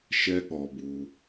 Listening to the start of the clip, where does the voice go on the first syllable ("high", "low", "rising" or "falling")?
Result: high